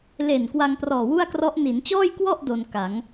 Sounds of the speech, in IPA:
le˨˩n kwa˧ŋprɔː˨˩wu˥˩a̯krɔ˦˥ʔ ni˩˦nt͡ɕɔː˥˩jkwɔ˥˩ʔ do˧nka˩˦ŋ

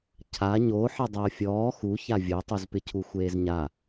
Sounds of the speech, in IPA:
cʰa ɲo ħɪdˤɛʊ̯fʲɔː xu çavʲotˤuz pɪcʰuxʷeːzɲa

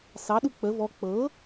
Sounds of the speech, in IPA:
sɑɗu k͡pə vɔ k͡pɤ

